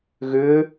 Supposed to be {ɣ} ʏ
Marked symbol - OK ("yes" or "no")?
yes